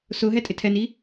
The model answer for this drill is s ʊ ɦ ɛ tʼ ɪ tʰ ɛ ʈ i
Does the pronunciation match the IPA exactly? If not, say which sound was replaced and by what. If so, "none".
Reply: ʈ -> n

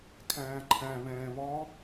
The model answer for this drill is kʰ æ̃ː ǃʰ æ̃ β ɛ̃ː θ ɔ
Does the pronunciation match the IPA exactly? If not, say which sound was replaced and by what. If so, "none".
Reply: θ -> β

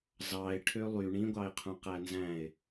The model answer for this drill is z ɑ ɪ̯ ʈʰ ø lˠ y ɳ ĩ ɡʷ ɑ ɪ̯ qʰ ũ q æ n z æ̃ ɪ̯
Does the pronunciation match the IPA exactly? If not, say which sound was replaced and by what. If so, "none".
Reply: none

